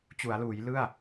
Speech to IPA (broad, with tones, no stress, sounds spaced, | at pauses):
t͡ɕ u˩˦ a̯ l uː˩˦ j l ɯ˥˩ a̯